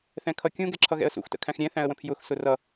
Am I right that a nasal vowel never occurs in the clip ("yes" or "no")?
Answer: no